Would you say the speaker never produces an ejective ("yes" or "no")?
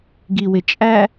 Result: no